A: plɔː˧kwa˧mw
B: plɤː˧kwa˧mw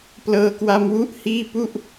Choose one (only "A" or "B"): B